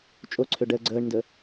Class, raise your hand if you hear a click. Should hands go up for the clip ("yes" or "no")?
yes